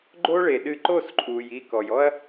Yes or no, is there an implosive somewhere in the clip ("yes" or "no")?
yes